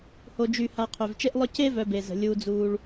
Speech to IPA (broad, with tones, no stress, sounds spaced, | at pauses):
h o˨ d͡ʒ y˨ h a˨ qʰ ø˩ v t͡ʃ e˦ ʔ lˠ œ˦ c e˥ v œ˨ b e˩ z ə̤˩ lʲ uː˨ d͡z uː˨ ɭ